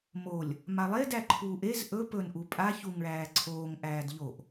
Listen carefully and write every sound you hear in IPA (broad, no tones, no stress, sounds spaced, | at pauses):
m o lʲ | m a lˠ e d æ ǃʰ uː ʔ e z ʔ ɵ p ɵ n ʔ u pʼ a ç u ŋ ɭ æː ǀʰ oː ŋ ʔ æː d ʎ o ʔ